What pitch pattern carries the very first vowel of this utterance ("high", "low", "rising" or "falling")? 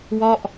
falling